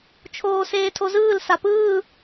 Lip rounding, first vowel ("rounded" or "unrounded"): rounded